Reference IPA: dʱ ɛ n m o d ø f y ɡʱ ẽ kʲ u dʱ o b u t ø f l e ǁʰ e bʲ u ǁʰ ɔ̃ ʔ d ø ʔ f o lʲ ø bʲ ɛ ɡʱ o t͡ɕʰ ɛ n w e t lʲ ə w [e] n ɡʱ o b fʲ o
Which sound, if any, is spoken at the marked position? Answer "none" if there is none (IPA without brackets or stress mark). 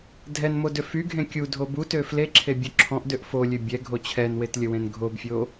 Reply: ẽ